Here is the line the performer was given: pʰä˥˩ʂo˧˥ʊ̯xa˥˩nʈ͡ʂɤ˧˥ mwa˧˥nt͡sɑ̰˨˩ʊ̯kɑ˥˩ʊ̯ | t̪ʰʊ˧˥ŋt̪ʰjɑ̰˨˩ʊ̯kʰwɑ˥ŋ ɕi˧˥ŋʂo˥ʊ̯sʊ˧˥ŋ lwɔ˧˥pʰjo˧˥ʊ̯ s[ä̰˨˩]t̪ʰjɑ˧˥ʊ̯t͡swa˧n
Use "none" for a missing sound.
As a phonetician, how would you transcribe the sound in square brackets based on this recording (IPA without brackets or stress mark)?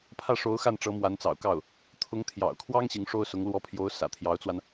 ä̰˨˩